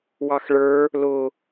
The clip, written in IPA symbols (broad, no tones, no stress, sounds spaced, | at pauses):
w ɑ x ɭ ə˞ | l ʊ